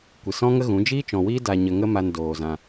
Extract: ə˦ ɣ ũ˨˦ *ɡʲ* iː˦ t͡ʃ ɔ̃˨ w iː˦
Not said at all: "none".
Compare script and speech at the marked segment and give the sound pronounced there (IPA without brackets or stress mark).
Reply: d͡ʒ